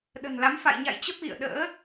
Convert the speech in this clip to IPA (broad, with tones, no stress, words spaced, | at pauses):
ɗə̤˨˩nla˨˦m fa̰˧˨jɲa̰˧˨jt͡ɕə˦˥p̚ ɣḭ˧˨ə̯ ɗə̰ː˧˥